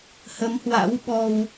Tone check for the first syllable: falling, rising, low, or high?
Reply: rising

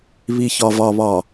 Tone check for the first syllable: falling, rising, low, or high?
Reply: low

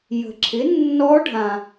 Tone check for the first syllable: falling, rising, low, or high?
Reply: low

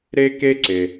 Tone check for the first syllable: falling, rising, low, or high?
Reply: high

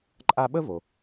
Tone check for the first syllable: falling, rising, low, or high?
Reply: high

